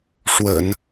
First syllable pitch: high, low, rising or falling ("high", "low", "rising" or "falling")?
low